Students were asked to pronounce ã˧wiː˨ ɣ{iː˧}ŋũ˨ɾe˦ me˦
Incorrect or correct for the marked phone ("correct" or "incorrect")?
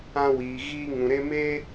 correct